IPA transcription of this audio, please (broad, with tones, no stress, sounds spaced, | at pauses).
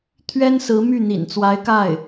t̪ʰ ɥ ɛ˥ n s ɹ̩˧˥ m y˥˩ n̪ ḭ˨˩ n t͡s w a˧˥ ɪ̯ k a˥˩ ɪ̯